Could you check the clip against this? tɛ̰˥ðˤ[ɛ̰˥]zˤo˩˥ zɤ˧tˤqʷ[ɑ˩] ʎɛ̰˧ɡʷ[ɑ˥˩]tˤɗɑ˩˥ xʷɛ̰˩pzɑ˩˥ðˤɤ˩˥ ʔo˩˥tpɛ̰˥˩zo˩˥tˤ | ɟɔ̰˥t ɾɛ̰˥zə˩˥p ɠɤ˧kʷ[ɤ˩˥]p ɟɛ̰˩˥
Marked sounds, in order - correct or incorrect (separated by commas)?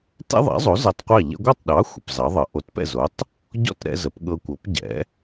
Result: incorrect, incorrect, correct, correct